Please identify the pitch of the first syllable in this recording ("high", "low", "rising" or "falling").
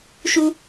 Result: low